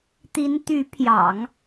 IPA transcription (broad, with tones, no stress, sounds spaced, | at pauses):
t̪ i˧˥ n t̪ y˧˥ pʰ j ɑ̰˨˩˦ ŋ